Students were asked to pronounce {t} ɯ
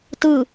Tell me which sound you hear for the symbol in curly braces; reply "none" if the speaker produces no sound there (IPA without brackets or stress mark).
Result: t